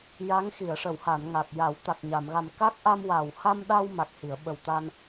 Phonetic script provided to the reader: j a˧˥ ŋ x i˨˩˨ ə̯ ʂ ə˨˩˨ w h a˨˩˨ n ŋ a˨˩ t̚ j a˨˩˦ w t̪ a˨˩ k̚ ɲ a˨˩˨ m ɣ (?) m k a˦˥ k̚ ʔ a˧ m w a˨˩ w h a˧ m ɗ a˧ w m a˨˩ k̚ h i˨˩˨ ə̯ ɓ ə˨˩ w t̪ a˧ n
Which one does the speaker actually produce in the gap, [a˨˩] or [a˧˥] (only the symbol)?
a˨˩